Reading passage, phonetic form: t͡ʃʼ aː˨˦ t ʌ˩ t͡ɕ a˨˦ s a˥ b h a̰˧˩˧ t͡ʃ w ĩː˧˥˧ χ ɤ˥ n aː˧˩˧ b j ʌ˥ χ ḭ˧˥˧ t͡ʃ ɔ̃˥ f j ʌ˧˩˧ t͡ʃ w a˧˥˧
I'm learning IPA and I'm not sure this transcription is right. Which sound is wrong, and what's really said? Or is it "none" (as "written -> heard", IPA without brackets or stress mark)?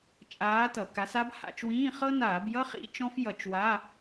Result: t͡ɕ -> k